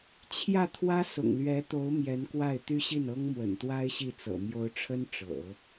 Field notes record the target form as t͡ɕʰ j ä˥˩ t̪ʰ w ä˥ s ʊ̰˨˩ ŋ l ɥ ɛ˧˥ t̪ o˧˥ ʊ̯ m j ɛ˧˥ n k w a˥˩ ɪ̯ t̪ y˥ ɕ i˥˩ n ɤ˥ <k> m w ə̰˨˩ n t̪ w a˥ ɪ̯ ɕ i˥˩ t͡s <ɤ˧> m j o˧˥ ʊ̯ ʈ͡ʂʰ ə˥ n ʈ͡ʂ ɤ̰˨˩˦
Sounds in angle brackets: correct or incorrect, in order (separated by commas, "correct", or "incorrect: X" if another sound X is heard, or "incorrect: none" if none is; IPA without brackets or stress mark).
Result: incorrect: ŋ, incorrect: ɤ̰˨˩